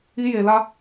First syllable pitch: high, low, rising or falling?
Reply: high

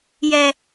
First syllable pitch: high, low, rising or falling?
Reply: low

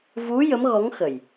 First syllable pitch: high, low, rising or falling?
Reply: rising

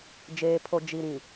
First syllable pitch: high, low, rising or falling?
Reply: low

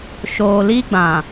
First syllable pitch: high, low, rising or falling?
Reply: low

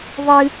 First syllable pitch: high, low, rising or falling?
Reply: high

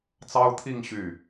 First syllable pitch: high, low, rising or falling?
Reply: high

